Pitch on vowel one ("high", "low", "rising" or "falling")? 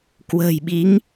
low